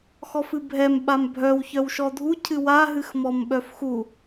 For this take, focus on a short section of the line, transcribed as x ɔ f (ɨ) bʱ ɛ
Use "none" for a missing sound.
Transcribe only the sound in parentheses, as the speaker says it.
ɨ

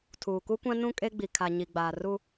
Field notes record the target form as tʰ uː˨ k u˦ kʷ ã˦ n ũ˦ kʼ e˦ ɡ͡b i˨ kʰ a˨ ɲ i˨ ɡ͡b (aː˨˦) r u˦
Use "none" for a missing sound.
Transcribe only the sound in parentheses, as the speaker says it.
aː˨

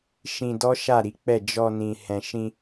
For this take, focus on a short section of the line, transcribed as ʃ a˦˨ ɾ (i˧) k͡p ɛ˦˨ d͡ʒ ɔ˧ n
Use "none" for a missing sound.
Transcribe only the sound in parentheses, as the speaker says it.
i˨˦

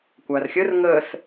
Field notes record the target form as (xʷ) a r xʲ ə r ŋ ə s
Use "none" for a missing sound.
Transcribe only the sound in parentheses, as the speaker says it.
kʷ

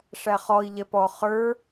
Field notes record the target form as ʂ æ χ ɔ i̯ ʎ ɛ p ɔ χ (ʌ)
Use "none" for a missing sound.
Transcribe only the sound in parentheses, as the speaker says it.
ə˞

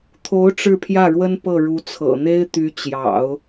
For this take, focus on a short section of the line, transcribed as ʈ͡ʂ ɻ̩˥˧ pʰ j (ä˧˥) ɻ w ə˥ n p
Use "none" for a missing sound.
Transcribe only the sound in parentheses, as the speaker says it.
ä˥˩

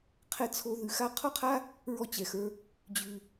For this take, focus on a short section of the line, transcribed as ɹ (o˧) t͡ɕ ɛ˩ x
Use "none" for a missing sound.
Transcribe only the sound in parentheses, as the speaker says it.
ɔ˧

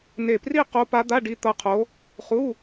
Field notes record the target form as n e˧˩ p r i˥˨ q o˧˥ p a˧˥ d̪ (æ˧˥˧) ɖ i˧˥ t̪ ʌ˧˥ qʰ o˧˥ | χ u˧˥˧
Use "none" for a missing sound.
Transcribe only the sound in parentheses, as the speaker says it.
a˧˥˧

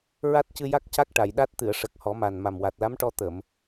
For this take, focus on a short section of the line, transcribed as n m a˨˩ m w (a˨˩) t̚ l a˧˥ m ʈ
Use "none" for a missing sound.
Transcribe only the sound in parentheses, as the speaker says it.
a˨˩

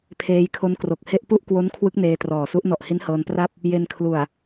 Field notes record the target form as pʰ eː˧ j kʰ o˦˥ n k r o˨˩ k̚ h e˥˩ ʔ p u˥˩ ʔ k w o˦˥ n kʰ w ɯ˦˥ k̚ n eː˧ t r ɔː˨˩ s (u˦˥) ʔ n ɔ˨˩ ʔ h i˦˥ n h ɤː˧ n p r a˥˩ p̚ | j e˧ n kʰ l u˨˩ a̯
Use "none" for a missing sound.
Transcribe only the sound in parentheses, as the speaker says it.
u˦˥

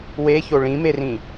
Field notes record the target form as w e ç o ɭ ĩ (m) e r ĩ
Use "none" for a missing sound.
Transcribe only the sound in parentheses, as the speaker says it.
m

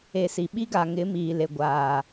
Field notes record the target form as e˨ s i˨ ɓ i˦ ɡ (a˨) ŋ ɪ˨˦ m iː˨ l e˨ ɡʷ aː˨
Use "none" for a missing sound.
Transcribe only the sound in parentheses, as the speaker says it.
a˨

